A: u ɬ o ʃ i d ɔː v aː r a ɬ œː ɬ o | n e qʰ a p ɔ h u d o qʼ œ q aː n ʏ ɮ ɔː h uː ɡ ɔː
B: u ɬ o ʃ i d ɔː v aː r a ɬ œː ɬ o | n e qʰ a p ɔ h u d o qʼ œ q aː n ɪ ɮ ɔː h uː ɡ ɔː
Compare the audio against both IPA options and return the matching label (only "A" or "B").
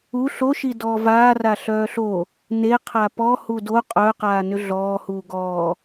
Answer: A